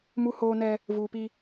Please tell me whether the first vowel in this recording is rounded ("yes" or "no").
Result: yes